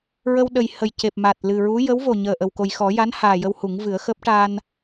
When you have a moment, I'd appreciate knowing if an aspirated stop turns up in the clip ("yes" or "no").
no